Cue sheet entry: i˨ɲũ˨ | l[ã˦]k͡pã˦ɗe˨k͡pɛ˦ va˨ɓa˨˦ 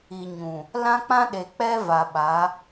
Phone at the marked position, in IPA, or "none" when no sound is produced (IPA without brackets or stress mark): ã˦